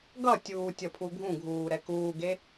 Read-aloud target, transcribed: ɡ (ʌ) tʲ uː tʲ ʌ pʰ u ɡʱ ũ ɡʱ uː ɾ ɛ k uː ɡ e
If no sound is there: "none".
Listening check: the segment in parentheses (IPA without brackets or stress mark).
ʌ